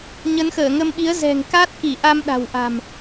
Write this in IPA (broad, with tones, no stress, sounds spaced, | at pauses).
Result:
ɲ ə˨˦ n x əː˧˩ ŋ ə˧ m ɓ i˨˦ ə̯ z ɛ̤˨˩ ŋ k a˦˥ t̚ k i˧˩ ʔ a˧ m ɗ a̤˨˩ w ʔ a̤˨˩ m